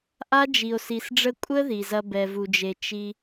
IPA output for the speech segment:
ʔ a˦ d͡ʒ i˨ o̯ s i˨ s ɖ͡ʐ ə˦ kʷʼ ə˦ ð i˨ z ɐ˦ b ɛ˨ v u˨ d͡ʒ e˨ t͡ʃ i˦

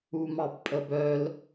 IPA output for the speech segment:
u m ɑ b pʼ ə b œ l

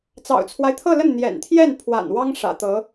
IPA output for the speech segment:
t͡s ɑ̰˨˩ ʊ̯ t͡sʰ w a˦ ɪ̯ t̪ʰ ɤ˥˧ l ə˥˩ n n̪ j ɛ̰˨˩ n t̪ʰ j ɛ˥˩ n pʰ w a̰˨˩ n w ɑ˥ ŋ ʂ ä̰˨˩ t̪ ɤ˧˥

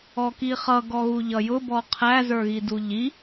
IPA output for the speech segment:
ɔ k i χ ʌ ɡ ɔ ɣ u ʎ ʌ j ʊ b ɔ qʰ æ z ə˞ ɣ i d u ʎ i

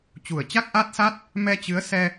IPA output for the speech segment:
t͡ɕ u˨˩ ə̯ t͡ɕ a˦˥ k̚ ʔ aː˦˥ t̚ s a˦˥ t̚ | m ɛ˧ t͡ɕ ɨ˨˦ ə̯ s ɛ˧

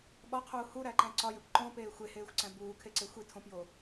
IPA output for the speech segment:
ɓ ɒ qʰ uː h u ɾ æ ǃ æ̃ ǀ ɒ j e kʷ ǃ õ p eː xʷ e h eː xʷ ǀ æ̃ b uː kʰ e ǀ e xʷ i tʰ õ p j o

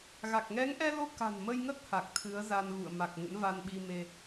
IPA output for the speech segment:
ɣ a˨˩ k̚ ŋ ɛ˨˦ ŋ ʔ ɛ˧ l o˧ k a̤˨˩ n m ə˧ j ŋ ə˦˥ t̚ h a˨˩ k̚ t̪ʰ ɨ˨˦ ə̯ z a˧ n ɣ ṵ˧˨ ə̯ m a˨˩ k̚ ŋ ə̰˧˥ n v a˧ n ɓ i˧ m e˧

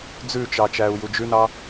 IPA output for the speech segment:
d͡z ʉ t͡ʃ ɑ t͡ʃ æː u̯ j u d͡ʒ ʉ n ɑ

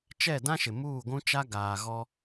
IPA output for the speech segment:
t͡ʃ ɛ˦˨ d ã˦ ʃ ɪ˨ m uː˦˨ ɡʷ ũ˦ t͡ʃ a˦ ɡ aː˨ ɣ ɔ˦

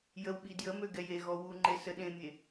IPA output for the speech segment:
j ə w ɓ i d j ə m ø ɡ ɛ j e ɣ ɔ w u ŋ͡ǃ e s ə ɗ ẽ mʲ e

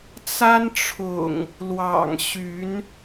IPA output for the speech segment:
t͡s a˦ n ʈ͡ʂʰ ʊ̰˨˩ ŋ | l w ɑ̰˨˩ ŋ ɕ y˨˦ n

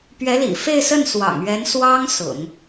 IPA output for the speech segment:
p ɥ ɛ˧˥ l ḭ˨˩ f e˥˧ ɪ̯ s ə˥˩ n s w ɑ̰˨˩ ŋ ɥ ɛ˧˥ n s w ɑ˥ ŋ s ʊ̰˨˩˦ ŋ

